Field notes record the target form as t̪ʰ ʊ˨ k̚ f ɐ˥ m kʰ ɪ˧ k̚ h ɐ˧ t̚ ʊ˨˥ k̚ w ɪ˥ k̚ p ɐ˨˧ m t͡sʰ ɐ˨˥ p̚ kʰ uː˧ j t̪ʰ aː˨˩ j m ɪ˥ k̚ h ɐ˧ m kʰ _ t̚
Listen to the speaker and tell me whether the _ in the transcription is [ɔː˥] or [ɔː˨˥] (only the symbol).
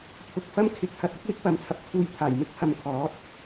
ɔː˨˥